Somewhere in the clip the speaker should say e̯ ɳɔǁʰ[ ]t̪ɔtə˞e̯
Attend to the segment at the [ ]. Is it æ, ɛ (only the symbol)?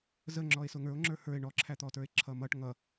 æ